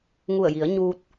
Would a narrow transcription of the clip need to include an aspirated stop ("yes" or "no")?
no